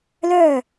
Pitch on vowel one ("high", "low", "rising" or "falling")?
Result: falling